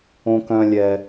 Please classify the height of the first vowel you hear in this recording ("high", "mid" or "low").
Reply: mid